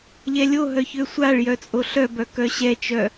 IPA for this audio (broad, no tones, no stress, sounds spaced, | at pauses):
ʎ ɛ lʲ o ɦ œ ç ø sʷ a ɭ j œ t͡sʼ o ɬ œ b œ k œ ɕ ɛ t͡ʃ œ